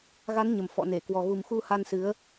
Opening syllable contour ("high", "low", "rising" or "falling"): rising